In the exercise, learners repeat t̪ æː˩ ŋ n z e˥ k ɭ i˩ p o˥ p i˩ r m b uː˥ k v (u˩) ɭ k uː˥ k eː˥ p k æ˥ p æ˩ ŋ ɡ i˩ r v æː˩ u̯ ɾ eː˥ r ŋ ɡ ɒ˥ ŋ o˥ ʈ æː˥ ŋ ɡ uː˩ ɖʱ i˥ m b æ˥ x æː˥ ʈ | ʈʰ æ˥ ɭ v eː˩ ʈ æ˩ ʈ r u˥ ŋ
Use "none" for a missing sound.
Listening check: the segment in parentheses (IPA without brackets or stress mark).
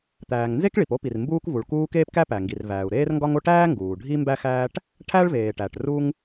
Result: u˩